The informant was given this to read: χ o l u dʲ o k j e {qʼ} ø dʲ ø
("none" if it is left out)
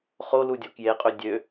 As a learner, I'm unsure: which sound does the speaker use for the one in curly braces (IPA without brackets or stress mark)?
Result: qʼ